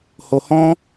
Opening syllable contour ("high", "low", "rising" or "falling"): low